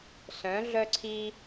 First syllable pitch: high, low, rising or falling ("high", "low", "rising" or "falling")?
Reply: rising